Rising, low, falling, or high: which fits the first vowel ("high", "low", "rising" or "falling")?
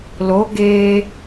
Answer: rising